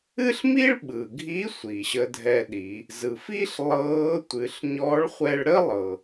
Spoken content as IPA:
ɨ˥ ɬ m i˥ ɭ ɓ ɯ˩ ɡʱ i˧˥ sʷ i˩ ɕ ə˧ dʱ ɛ˧ ɗ i˩˧ | z ɯ˩ f i˥ ɬ lˠ ɤː˧˥ tʷ ɨ˩˧ ɬ ɲ ɔ˧˥ ɭ χʷ ɛ˧ ɭ ɾ ə˥ lˠ ɤ˩

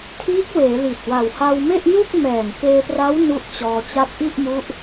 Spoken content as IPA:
tʰ iː˦˥ k̚ w eː˩˦ l i˨˩ t̚ w a˨˩ w h a˧ w m e˥˩ ʔ j u˥˩ k̚ m ɛː˨˩ ŋ k eː˧ p r a˦˥ w n u˦˥ ʔ t͡ɕ ɔː˧ t͡ɕ a˦˥ p̚ ʔ i˥˩ ʔ m u˦˥ ʔ

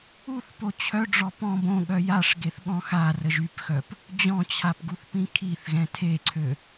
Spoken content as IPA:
u θ p o t͡ɕʰ œ ɖ͡ʐ ɔ p ɔ̃ b õ ɠ œ j a ʂ ɡ e θ ɠ ɔ̃ x a r ə ʒ y p x œ p | d͡ʑ ɔ̃ t͡ɕʰ a p ɡ u θ p ĩ kʰ i θ ɣ ɛ̃ tʰ e ǀʰ ø

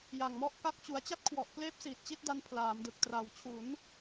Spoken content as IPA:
j a˨˩ ŋ m ɔ˥˩ ʔ k a˥˩ k̚ t͡ɕ u˩˦ a̯ t͡ɕ a˥˩ t̚ kʰ w ɔ˨˩ ʔ k l eː˦˥ p̚ s iː˨˩ t̚ t͡ɕ i˥˩ t̚ d a˧ n pʰ l aː˩˦ m d ɯ˨˩ k̚ t r a˩˦ w t͡ɕʰ u˩˦ n

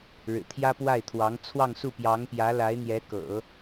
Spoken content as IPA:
ɻ ɻ̩˨˩ t̪ʰ j ä˥ p w a˥˩ ɪ̯ t̪ʰ w ɑ˧˥ ŋ t͡sʰ w ɑ˥˧ ŋ s u˥˩ p j ɑ˧˥ ŋ p j ä˧˥ l a˧˥ ɪ̯ n̪ j ɛ˧˥ k ɤ̰˨˩˦

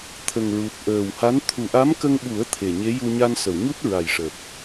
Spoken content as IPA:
t̪ʰ ə˨˩ ŋ ɹ u˨˩ t̚ ʔ əː˨˩ w h a˧˥ n t̪ʰ u˨˩ ʔ a˧˥ m k ə˧ ŋ ɓ u˨˩˦ ə̯ t̪ʰ e˨˩ ɲ e˧˥ j u˧ ɲ a˧ n s ə˨˩˨ w ɲ u˦˥ t̚ ɹ a˨˩ j ʂ əː˨˩ k̚

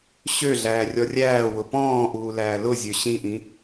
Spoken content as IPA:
ɕ ø ɮ æː rʲ ɔ rʲ æː w ʊ p ɔ̃ː ʔ uː l æː l ʊ zʲ ø ɕ ĩ ʔ ĩ

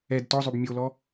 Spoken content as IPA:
ɛ d t ɔ zˤ o b mʲ o l ɔ

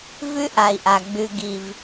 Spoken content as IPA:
v ʉ˦ ʔ a˩ i̯ ʔ a˩ ɡ͡b ʉ˨ ɡ i˩ v

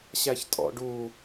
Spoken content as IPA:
ɕ æ ç tʼ ɔ̰ ɖ u

